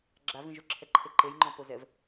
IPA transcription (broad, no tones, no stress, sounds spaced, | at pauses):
ɡ͡ǁ a v ĩ ʒ ʊ ǁʰ ɛ ǃʰ e ǃ e j ŋ͡ǃ ɔ̃ p o z ɛ v